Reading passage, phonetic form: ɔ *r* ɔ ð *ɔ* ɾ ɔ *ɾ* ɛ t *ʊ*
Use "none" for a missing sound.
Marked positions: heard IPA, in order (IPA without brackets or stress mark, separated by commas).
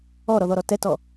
ɾ, ɔ, t, ɔ